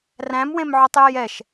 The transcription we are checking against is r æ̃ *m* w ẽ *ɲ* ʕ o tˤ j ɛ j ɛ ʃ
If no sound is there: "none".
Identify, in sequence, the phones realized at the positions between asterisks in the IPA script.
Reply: m, m

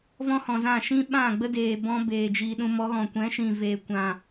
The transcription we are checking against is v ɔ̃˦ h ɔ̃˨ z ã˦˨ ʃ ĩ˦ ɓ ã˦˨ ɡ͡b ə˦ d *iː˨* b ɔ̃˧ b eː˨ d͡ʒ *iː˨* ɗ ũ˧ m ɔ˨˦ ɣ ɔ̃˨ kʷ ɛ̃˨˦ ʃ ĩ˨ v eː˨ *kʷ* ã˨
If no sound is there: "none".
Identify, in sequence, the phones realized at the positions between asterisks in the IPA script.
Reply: eː˨, iː˨, kʷ

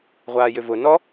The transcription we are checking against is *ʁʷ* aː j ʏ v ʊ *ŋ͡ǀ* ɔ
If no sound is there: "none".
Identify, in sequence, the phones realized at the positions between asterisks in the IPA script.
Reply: ʁʷ, n

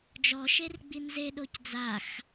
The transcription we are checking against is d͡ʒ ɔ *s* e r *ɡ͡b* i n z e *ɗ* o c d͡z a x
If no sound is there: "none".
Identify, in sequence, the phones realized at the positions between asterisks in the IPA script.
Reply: ʃ, ɡ͡b, ɗ

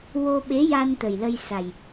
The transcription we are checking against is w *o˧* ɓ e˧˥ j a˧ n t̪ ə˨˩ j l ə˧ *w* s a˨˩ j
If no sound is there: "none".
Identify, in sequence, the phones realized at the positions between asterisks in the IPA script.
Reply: o˧, j

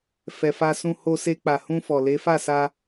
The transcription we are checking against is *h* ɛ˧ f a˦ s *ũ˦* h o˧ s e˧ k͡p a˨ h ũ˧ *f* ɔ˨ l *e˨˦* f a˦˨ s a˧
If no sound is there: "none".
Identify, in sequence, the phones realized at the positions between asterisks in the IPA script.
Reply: f, ũ˦, f, e˨˦

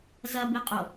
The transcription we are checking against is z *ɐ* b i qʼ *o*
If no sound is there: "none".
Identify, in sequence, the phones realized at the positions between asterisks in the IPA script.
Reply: ɐ, o

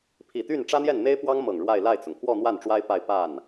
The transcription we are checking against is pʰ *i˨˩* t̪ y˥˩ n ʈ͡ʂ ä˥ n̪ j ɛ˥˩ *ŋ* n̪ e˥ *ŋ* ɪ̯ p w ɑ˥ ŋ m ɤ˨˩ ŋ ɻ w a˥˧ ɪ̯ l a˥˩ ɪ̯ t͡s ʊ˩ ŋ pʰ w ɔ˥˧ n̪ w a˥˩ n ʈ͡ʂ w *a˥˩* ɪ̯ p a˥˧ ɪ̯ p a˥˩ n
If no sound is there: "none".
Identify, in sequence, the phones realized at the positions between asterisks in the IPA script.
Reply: i˨˩, n, none, a˥

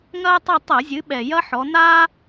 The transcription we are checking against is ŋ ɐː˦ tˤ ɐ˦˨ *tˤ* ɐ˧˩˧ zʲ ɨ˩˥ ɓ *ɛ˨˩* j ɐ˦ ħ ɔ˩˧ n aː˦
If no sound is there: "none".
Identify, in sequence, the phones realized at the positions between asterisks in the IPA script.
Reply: tˤ, ɛ˨˩

